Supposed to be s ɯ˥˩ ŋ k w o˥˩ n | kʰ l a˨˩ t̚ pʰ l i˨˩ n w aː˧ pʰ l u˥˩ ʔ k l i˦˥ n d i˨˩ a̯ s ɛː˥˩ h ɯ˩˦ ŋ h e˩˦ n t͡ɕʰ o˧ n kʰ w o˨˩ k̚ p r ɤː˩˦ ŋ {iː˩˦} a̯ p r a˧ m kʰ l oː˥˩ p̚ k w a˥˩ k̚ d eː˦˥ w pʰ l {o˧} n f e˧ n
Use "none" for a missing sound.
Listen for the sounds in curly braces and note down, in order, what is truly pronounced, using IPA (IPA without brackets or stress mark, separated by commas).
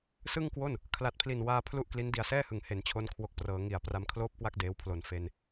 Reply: i˩˦, o˨˩